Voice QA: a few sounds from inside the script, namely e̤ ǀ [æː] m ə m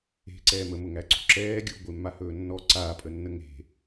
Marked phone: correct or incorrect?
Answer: incorrect